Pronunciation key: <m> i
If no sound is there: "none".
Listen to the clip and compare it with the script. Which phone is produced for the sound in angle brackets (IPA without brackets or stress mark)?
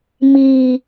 m